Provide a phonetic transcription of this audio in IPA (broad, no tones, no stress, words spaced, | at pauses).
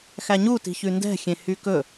xæɲuti̤çʉ ndɛ̤xʲẽ hykɵ